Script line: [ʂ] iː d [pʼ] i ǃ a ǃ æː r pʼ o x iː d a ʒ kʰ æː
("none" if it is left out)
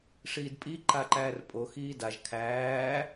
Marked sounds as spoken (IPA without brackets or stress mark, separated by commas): ʂ, pʼ